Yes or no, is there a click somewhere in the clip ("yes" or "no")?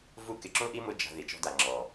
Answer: yes